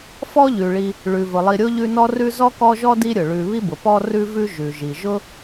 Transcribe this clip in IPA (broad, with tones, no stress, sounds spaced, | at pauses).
f ɔ˦ ʎ ʉ˩ ɭ i˨ | ɭ ʉ˩ v ʊ˩ lˠ i˨ ɾʲ o˥ ʎ ʉ˦ n ɔ˥ r ʉ˥ z ɔ˥ k ɔ˦ ʒ ɔ˥ d i˦ ɾʲ ʊ˩ ɭ ʉ˨ β i˦ b ʊ˩ p ɔ˦ r ʉ˦ v ʉ˦ ʒ ʉ˩ ʒ i˩ ʒ ʊ˥